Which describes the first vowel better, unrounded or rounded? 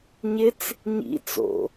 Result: unrounded